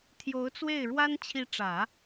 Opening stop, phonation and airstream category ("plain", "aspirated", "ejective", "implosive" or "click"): aspirated